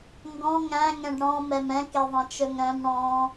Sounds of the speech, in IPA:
ŋɡɔ̃ ŋæ̃ŋɛ̃ɖ ɽɔ̃mɛm ɛ̃keðˤɛ̃t͡ʃɵŋ ɾœ̃m ɽɔ̃

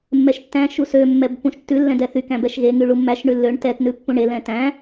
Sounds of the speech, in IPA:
mːɛʃtːæ̃ ʃusø mːɛbpːũʃtːʉ lːɛ̃dɛθy kæ̃bɛʃɣeŋ yɭumːæʃ ɳʉlːøɳ tɛt nʉpːũɳe lɛ̃tæ̃

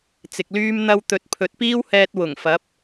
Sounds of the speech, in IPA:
t͡sɪ˨k̚lyː˥m n̪ɐ˧w t̪ɵ˨˥t̚pʰɵ˨˥t̚piː˥whɛː˧t̚ wʊ˨˩ŋfɐ˨˥p̚

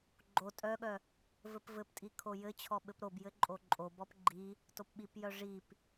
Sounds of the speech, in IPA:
ɡ͡ǃo tʼœɠœ | vɘpvɘptʼi kʰojɘt͡ɕʰɔ ɓɘpɾobjɘ ǃʼoǃʼobɔp ɡ͡ǃi | topɓipjœ ʐip

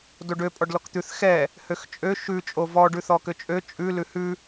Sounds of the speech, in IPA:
doɖø pʼɔɖlɔkt̪ʉθ xɛ | høxt͡ʃʼø ʃʉ t͡ʃʼovɔ ɖʉθɔkøt͡ʃʼø t͡ʃʼʉ lʉhʉ

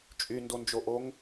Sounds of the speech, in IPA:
t͡ʃʼyndond͡ʒoʔoŋ

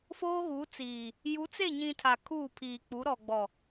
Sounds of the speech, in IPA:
foː˦ɣu˨˦t͡siː˨ | ju˨˦t͡se˦˨ɲĩ˨ tʰa˨kʰuː˦˨pʰiː˨k͡pu˨˦ ɾɔ˨ɡ͡bɔ˨

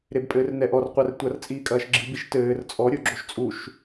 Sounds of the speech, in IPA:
ɾebpʼɘːrnɛʔɔr qʷɛrtʷɐr t͡sʼiːkʼɐːʃɡ͡ǁɨ biʃtɘːr t͡sʼɔ ɾʲuɡ͡ǁoʃt͡sʼuʃ

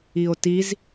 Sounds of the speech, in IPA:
io̯tiz

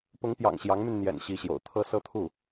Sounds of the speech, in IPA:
pʊ˧˥ŋpjɑ̰˨˩ŋ ɕjɑ˧˥ŋmy˧nn̪jɛ̰˨˩n ɕi˧˥ɕjo̰˨˩ʊ̯ t̪ʰɤ˥ sɤ˥t̪ʰu˥˩

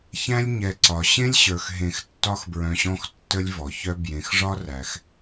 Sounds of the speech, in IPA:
çæ̃˦lʲɲɛ˨ǀɒ˩ ɕẽ˦lʲɕə˞˩x ɦẽ˨x tːɒ˦xbɹœ̃˨ɕɔ̃˦x tːə˦lʲvɔ˩çœ˦ bjẽ˩xʐɒ˦ræ˩x

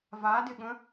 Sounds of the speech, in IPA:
vadɪɠə̃

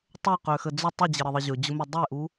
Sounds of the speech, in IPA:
tˤɵqøxə d͡zʊ tˤəd͡ʑəɾəðˤə ʑɵd͡ʑʊmø dˤeʔu

